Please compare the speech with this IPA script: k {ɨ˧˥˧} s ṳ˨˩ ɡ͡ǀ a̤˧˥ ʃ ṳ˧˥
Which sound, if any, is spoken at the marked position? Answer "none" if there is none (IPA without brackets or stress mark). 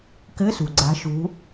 ɨ˧˥˧